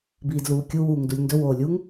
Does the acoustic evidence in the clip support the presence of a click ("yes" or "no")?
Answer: no